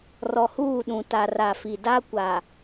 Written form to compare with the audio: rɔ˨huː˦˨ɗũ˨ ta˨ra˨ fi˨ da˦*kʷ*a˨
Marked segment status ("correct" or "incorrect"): correct